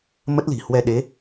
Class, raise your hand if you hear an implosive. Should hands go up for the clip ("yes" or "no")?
yes